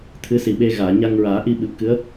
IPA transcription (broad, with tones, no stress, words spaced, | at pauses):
t̪ʰɨ˧˥si˨˩ɓe˧ɣaː˨˩˨ ɲa˧ŋɹaː˨˩˦ ʔi˧ɓɨ˨˩p̚kɨ˧˥ə̯